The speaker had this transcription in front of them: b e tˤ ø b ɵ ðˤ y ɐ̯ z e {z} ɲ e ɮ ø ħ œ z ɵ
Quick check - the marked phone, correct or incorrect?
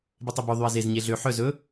correct